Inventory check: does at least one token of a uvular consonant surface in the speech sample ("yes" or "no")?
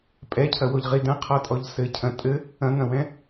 yes